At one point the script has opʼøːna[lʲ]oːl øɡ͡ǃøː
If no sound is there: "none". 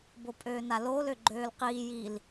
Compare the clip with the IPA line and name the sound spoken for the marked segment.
l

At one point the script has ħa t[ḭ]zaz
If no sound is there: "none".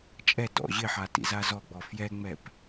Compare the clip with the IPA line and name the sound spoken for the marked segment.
ḭ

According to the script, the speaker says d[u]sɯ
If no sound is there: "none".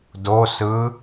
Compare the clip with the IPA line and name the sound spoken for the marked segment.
o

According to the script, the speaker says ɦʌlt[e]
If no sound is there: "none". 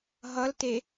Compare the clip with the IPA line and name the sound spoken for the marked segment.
e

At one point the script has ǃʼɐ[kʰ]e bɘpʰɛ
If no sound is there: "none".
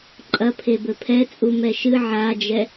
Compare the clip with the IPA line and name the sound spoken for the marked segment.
pʰ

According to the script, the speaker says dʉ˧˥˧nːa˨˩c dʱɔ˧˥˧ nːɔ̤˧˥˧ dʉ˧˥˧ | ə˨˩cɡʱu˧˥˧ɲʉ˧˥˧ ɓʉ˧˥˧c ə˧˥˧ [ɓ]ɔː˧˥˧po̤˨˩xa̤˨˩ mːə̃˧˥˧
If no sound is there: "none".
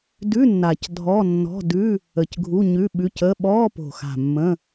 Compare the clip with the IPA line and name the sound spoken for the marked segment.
ɓ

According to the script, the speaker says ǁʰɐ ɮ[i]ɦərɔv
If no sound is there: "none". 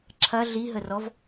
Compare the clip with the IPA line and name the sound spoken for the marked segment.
i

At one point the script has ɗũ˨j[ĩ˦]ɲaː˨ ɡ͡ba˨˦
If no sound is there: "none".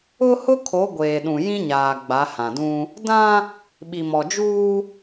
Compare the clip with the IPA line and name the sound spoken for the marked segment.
ĩ˦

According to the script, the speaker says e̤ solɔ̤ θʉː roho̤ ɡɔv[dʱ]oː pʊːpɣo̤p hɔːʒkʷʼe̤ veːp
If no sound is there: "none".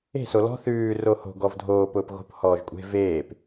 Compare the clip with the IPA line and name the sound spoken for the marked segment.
dʱ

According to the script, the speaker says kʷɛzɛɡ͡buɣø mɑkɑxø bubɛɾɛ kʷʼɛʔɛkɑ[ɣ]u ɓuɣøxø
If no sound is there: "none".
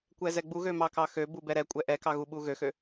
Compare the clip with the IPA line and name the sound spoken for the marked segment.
ɣ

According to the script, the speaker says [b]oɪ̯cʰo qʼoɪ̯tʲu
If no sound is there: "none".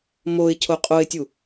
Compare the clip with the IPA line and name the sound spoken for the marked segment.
m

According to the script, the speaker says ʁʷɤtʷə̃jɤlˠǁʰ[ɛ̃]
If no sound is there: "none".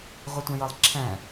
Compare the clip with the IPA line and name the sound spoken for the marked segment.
ɛ̃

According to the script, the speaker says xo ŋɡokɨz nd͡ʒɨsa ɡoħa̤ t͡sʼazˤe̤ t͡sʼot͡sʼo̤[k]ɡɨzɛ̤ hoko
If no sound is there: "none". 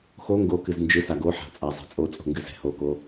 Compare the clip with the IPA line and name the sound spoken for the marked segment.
ŋ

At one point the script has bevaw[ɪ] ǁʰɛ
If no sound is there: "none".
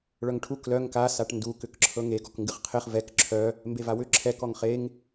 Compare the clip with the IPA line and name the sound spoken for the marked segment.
ʏ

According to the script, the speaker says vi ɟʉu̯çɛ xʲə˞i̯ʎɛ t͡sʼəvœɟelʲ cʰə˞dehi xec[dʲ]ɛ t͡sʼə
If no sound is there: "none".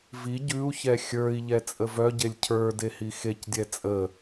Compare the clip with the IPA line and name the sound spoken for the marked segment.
dʲ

